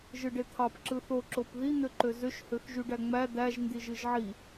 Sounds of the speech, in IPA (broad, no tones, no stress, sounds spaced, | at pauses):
ʒ ɯ ɖ e t̪ʰ ɑ p ǁ ɯ θ o ǁ o p ð i n̪ ø ǃ ø z ø ʃ h ø x ʒ y ɖ æ ŋ͡m æ d̪ æ ʒ n d i ʒ ɯ ʒ ʕ i